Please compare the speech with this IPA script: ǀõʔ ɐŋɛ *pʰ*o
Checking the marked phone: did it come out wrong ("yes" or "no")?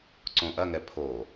no